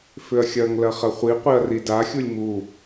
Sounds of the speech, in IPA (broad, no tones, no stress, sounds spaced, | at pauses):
f ʏ ɐ̯ xʲ ɐ ŋ l ɐ χ ɐ χʷ i qʷ i ɐ̯ r i d a xʲ u lʲ m u